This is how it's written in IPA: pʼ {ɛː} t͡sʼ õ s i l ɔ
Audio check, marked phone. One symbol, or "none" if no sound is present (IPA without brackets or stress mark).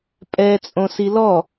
ɛː